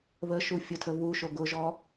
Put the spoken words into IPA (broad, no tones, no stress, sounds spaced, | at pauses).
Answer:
β ə ʃ u fʲ ʊ tʰ ə β u ʃ o ɡ ʊ ʒ ɔ